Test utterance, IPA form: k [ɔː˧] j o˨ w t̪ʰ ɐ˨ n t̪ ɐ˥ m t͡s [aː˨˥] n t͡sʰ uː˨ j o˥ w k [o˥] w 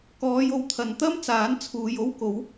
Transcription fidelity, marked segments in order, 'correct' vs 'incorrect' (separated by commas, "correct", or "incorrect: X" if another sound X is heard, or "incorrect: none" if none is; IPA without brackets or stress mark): incorrect: ɔː˨˧, correct, incorrect: o˨˥